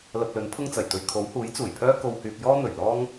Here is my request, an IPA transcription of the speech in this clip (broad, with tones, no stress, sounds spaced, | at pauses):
l ɐ˧ p̚ l ɵ˨˥ n pʰ ʊ˥ ŋ t͡s ɐ˨˩ j t̪ ɵ˧ ɥ kʰ o˨˥ w h uː˨˥ j t͡s uː˨˩ j pʰ œː˥ k o˧ w h yː˧ p̚ j ɔː˥ n̪ ɵ˨˩ ɥ l ɔː˥ ŋ